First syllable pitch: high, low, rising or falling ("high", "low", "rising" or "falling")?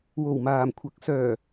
low